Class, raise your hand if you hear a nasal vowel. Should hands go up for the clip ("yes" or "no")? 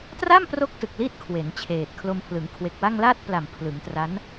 no